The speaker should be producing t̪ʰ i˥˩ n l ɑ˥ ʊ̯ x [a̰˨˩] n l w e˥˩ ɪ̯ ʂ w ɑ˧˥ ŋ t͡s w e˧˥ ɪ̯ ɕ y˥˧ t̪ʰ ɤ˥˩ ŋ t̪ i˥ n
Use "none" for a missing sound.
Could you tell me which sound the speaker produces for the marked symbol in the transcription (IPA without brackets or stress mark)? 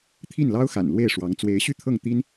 a̰˨˩